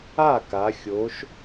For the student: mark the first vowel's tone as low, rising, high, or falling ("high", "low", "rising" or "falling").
falling